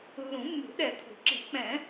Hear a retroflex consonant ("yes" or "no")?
no